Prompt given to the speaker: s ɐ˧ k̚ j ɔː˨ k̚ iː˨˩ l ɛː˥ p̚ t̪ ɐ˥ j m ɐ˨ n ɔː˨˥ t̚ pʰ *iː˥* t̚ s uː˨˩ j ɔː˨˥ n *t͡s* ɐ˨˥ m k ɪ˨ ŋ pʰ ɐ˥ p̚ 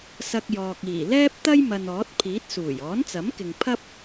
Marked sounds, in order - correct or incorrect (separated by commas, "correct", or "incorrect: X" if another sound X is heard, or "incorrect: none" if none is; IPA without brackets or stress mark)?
incorrect: iː˨˥, correct